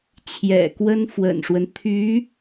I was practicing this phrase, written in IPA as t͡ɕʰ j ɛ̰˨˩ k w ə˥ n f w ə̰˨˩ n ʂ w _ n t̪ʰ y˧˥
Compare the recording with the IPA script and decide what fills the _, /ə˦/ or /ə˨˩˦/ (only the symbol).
ə˦